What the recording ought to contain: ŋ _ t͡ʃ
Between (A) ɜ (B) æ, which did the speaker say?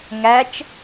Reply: B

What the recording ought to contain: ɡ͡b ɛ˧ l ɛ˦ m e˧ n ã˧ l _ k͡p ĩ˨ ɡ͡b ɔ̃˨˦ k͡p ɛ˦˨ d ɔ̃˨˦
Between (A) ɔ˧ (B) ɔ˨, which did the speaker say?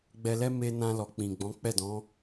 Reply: B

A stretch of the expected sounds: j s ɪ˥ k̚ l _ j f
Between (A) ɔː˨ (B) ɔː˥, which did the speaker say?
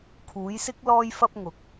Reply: B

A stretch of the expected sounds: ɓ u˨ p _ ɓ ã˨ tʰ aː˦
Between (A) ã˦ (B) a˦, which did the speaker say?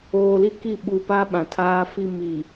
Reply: B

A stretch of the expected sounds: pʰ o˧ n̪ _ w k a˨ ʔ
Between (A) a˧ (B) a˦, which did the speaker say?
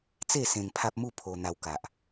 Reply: A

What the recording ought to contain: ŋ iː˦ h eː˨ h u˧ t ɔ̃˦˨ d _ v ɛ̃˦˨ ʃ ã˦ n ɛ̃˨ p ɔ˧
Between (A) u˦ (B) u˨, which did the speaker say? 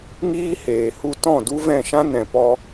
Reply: A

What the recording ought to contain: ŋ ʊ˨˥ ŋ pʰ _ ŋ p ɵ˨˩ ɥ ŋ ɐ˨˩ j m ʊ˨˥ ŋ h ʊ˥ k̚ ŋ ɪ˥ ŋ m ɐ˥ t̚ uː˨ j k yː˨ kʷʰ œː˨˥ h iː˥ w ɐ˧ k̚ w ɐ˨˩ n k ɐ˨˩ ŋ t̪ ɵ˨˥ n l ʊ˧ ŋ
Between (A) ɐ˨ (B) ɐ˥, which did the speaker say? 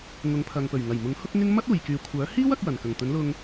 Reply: A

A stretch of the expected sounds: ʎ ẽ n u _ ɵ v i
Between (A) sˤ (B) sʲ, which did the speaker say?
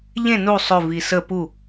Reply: A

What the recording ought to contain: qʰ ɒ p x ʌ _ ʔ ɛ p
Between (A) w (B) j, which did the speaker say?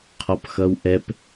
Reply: A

